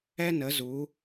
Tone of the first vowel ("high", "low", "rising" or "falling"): high